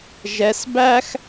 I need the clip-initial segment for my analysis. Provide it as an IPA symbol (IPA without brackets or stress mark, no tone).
ʒ